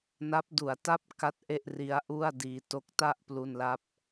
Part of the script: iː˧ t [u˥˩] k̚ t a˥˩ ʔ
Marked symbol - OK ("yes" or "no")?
no